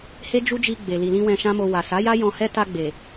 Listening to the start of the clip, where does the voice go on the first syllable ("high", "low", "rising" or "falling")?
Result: high